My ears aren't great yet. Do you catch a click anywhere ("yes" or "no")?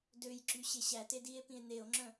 yes